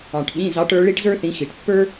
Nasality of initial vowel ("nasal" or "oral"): nasal